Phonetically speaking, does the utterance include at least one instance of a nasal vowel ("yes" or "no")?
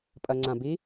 yes